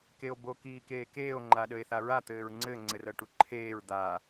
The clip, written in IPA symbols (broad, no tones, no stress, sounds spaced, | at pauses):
k e o̯ b o k iː k eː k eː o̯ ŋ͡ǃ a ɗ ə e̯ θ a ɹ a t̪ ɘː ɹ ŋ͡ǀ ɘ ŋ͡ǀ ɘ r ɤ ʈ u ǃʰ eː ɹ d̪ a